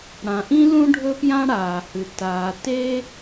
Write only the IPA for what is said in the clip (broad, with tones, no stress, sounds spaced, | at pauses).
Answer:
ɽ ã˩ ʔ ĩ˥ l ũ˥ ɖʱ ɵ˥ p j ã˥ ɽ aː˩ h ɨ˩ t aː˩ t e˥